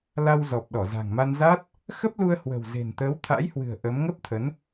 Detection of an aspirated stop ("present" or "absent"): present